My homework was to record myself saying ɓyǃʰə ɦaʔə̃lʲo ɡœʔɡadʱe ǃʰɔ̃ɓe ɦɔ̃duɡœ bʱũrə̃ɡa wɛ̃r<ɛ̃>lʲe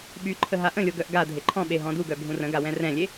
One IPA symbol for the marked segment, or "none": ɛ̃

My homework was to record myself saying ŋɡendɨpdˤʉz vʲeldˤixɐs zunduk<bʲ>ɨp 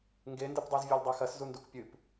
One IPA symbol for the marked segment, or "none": pʲ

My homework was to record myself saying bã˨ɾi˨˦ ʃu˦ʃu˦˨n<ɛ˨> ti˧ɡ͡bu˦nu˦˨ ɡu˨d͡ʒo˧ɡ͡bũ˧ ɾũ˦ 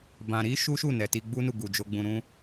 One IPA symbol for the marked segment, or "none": ɛ˨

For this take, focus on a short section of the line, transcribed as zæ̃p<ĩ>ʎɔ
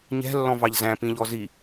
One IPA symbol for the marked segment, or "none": ĩ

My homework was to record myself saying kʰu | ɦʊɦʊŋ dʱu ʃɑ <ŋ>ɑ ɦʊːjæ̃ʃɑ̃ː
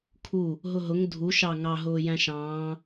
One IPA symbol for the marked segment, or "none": ŋ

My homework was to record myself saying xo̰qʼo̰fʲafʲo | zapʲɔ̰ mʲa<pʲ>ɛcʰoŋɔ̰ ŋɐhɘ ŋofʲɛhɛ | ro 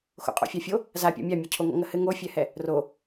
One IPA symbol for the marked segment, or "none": mʲ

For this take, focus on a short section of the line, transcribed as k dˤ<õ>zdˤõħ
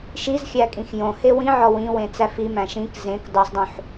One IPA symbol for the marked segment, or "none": o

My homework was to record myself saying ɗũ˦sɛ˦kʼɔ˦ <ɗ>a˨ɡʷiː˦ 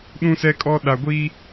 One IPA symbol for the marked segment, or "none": ɗ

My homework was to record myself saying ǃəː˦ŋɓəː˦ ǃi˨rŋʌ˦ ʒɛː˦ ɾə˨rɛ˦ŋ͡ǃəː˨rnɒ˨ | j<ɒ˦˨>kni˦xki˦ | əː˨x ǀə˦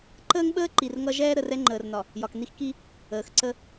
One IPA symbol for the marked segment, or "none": ɒ˨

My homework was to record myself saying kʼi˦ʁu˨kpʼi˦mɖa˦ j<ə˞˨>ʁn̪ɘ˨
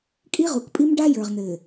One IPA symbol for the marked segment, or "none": ə˞˨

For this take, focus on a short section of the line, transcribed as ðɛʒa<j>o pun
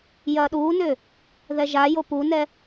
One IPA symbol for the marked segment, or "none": j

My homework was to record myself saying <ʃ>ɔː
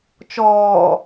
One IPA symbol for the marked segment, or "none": t͡ʃ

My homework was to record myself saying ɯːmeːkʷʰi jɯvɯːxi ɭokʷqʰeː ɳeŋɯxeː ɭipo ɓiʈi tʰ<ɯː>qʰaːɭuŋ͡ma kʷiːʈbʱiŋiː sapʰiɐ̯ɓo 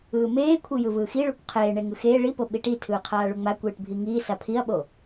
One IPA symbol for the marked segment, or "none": ɯː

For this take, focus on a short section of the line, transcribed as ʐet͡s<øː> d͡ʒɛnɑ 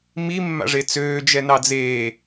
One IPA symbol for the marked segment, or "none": øː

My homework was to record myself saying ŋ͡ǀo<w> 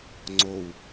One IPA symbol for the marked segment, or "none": w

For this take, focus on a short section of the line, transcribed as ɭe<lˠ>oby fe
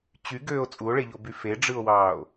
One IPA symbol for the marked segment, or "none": ʎ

